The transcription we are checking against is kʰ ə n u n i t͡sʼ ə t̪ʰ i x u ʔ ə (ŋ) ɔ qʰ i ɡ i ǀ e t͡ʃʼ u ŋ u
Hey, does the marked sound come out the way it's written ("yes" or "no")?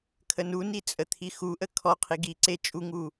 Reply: no